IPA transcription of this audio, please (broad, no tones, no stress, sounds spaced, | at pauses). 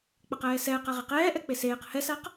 k͡p ɐ q ɛː s ɛː q a ʁ e q ɛː ʔ ɛ k͡p e s eː q h ɛ s a q